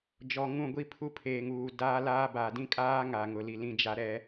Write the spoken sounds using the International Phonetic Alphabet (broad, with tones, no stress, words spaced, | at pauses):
d͡ʒɔ˨ŋũ˦˨ ɡʷi˦pʰu˦pʰeː˨ŋuː˨ daː˦laː˦ ba˨dĩ˦kʼaː˦ ŋa˨ŋʊ˨li˨ lĩ˦d͡ʒa˦ ɾɛ˦